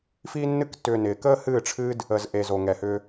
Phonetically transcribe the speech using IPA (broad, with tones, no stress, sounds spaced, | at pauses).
f iː˦ nː ɨ˦ k tː ʏː˧ n ɪː˨ k əː˦ h ɨː˦˨ ʈ͡ʂʰ ɨː˦ d | ə˨ z ʔ e˨ z o˨ ŋ ɛ˨ h ʏː˧